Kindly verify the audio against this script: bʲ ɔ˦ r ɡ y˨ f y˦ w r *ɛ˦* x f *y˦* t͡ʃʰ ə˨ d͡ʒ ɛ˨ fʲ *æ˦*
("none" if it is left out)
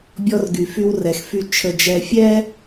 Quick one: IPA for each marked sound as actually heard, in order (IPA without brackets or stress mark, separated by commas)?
ɛ˨, y˦, ɛ˦